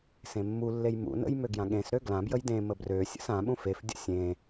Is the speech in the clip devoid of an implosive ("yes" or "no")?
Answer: no